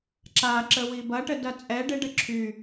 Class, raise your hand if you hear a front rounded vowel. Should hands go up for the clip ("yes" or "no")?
yes